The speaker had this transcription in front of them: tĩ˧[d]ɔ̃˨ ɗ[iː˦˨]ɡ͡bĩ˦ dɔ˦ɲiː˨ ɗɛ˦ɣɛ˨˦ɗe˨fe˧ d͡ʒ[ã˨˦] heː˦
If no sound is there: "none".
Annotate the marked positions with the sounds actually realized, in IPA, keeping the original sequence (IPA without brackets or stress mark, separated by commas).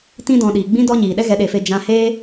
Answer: d, iː˨, ã˦